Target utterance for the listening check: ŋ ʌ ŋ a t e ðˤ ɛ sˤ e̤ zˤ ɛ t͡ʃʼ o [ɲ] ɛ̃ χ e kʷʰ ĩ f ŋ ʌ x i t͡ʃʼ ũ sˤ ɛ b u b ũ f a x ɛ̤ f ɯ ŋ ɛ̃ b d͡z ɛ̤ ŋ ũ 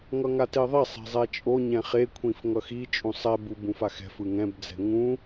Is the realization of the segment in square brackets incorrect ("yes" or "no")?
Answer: no